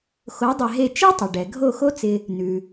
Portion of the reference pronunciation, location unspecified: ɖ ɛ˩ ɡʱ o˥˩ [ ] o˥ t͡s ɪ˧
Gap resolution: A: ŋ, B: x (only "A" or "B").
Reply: B